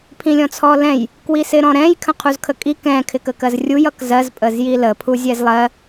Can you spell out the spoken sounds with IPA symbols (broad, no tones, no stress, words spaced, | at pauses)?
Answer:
pʰĩlʲɔ̃t͡sʰɔlɛ̃j | kwisɪɾɔ̃ɾɛ̃j kʰə̃qʰuzkʰəkʼi kɛ̃ kʰɪkəkɜzrʲuj ʌkzɜz pʼəzjilə pʰuzʲɛzlˠɜ